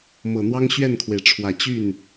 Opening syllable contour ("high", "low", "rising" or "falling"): low